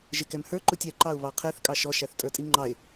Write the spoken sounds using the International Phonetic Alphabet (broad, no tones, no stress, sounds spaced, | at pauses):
ʒ ɪ k ɛ m h ə˞ ǃ u tʲ ɛ ǃ ɑ ʊ̯ β ɑ qʰ ɛ θ kʼ ɑ ʃ ɔ ʃ æ θ tʼ ə˞ tʼ i ŋ͡ǃ ɑ ɪ̯